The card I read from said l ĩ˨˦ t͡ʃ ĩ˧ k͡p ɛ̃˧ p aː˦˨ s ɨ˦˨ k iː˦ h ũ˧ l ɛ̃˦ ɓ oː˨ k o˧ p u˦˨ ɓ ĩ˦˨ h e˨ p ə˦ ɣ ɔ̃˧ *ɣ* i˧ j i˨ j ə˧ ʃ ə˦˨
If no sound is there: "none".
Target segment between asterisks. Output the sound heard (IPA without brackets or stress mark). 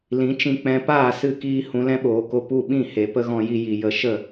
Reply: j